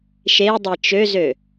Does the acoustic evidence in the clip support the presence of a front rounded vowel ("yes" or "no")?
yes